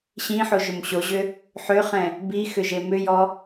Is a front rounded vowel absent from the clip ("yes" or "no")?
no